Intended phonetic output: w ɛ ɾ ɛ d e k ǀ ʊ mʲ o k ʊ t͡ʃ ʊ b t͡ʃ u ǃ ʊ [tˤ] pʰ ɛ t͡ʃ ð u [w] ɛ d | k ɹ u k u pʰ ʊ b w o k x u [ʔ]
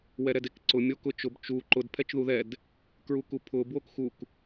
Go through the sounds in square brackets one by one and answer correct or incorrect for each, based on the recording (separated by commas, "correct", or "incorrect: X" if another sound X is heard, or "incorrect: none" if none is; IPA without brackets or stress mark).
incorrect: d, incorrect: ð, incorrect: k